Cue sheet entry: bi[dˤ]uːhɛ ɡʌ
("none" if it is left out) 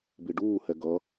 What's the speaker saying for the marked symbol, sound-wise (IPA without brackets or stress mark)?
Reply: ɖ